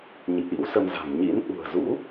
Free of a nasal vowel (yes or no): yes